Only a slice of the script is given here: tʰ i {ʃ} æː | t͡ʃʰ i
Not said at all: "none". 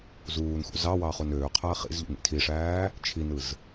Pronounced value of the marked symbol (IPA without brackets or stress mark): ʂ